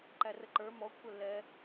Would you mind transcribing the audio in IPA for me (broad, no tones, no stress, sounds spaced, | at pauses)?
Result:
ǃ æ r ə ǃ ə˞ m ɔ kʷʰ ə lː ɛ